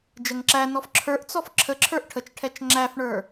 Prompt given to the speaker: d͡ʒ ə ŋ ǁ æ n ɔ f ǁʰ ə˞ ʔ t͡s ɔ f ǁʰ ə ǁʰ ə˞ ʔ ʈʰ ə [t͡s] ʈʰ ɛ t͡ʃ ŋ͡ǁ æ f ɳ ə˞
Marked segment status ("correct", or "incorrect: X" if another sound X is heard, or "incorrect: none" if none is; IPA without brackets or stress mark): incorrect: t͡ʃ